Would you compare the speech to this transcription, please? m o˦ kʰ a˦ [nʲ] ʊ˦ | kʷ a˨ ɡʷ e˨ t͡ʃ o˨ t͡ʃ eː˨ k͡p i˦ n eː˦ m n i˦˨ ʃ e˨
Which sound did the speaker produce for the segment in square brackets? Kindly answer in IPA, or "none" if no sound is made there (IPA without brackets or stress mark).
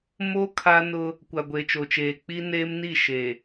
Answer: n